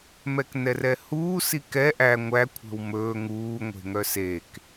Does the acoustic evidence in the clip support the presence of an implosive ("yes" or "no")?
no